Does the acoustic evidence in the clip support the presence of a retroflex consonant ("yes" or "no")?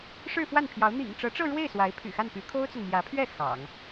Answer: yes